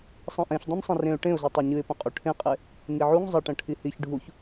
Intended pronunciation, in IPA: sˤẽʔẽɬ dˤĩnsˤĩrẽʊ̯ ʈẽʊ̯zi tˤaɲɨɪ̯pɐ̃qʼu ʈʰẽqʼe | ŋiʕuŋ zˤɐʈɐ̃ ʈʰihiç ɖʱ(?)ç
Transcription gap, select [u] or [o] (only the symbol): u